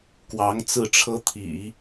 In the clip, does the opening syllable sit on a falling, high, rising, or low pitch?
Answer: rising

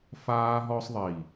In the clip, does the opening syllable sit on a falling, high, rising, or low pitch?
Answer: high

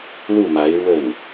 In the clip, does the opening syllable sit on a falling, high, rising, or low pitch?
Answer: falling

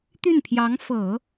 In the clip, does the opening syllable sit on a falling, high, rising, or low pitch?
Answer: falling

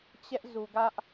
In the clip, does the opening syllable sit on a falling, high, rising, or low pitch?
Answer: high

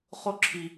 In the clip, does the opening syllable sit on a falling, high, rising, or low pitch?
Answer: high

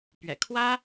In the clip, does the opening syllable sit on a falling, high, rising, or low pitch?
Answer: low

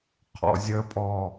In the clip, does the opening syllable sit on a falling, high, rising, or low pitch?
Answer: low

